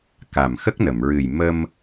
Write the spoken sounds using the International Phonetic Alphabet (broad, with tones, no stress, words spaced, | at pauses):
ka˨˩m xə˦˥k̚nə˨˩˨mɹɨ˨˩j mə˧m